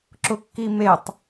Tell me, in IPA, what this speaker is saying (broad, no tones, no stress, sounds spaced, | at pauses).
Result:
ǁ ʊ kː i m e tˤ